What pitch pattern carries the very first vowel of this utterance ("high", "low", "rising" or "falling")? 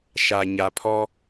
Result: low